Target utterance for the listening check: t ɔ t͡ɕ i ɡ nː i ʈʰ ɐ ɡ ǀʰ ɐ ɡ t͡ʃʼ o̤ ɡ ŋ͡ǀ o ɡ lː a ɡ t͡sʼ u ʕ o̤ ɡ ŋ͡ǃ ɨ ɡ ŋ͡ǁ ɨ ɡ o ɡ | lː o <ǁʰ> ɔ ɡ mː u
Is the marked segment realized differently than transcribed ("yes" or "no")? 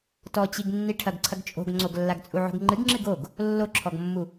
no